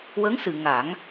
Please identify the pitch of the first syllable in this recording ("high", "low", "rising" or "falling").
rising